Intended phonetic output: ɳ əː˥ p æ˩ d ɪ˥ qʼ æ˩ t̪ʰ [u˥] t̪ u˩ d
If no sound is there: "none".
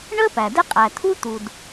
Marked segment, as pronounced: u˥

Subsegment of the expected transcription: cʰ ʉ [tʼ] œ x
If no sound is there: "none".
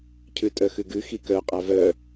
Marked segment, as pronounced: tʼ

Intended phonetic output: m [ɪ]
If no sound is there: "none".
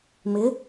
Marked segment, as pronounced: ɪ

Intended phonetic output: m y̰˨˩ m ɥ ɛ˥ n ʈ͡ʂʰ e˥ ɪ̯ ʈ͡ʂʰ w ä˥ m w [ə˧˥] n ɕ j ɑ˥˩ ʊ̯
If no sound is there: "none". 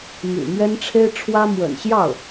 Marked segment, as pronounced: ə̰˨˩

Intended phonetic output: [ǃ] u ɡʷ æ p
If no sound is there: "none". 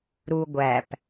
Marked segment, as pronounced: ɾ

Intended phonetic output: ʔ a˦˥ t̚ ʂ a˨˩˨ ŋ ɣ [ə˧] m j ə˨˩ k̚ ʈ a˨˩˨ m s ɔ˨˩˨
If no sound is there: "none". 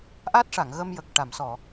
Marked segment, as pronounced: ə˧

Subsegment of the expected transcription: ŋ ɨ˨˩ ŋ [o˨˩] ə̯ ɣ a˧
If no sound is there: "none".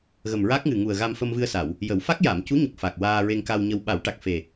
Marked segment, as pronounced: u˨˩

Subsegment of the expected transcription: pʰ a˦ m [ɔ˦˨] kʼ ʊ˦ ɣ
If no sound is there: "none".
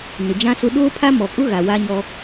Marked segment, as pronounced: ɔ˨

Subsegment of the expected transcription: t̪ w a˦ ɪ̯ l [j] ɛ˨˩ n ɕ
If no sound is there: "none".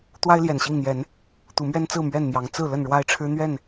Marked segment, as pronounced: j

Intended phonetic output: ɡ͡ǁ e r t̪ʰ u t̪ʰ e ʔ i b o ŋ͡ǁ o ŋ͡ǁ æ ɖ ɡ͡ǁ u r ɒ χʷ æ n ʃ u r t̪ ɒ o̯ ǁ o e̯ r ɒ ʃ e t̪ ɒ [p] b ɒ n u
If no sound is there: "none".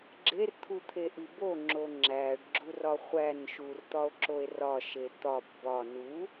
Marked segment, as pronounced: p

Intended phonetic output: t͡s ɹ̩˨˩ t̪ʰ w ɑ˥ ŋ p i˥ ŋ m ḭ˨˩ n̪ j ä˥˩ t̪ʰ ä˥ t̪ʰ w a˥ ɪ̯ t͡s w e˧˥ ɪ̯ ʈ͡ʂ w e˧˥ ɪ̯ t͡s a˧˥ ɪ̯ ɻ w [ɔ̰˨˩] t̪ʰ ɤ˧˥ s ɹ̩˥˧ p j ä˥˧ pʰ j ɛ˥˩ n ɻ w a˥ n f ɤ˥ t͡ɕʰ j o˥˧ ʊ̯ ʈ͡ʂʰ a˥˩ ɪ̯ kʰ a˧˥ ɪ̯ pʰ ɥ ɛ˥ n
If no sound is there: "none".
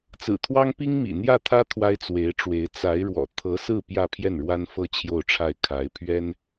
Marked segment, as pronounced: ɔ̰˨˩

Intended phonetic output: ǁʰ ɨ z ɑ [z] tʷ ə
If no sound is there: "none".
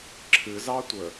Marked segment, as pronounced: none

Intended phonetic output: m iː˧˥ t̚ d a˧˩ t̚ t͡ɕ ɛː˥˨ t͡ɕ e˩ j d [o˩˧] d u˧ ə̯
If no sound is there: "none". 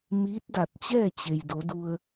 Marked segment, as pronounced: o˩˧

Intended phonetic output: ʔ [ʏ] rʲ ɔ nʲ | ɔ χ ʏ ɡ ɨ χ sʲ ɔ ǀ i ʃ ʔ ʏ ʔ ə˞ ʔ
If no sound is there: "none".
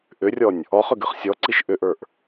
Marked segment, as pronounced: ʏ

